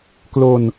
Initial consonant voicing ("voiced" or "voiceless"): voiceless